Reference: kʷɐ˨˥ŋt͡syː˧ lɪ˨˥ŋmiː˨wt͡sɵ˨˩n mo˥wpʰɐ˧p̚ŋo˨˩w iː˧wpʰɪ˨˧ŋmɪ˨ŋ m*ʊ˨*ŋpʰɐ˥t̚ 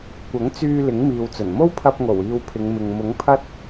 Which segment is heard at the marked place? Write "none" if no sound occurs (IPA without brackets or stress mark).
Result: ʊ˨˥